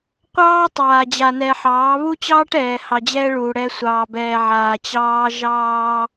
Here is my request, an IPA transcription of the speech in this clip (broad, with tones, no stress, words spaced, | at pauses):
qʷɑː˦tˤaː˨ d͡ʑa˨nɛ˨ħɑː˨˦ βu˦t͡ɕɑː˦ʈ ɛː˨hɑ˨d͡ʑɛː˦ ɭuː˨ɽɛ˦ sʷɑː˨bɛː˨ʕaː˨ t͡ɕɑː˦ ʒɑː˦